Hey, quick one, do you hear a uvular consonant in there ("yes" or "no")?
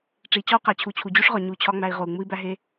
yes